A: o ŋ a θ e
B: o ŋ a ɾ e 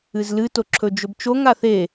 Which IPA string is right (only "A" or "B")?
A